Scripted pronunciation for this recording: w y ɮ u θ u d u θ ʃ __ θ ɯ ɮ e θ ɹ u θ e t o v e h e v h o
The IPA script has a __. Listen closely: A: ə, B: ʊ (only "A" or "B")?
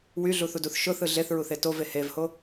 B